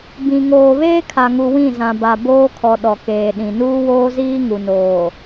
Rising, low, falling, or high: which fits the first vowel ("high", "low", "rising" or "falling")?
low